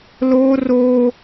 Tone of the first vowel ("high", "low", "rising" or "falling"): high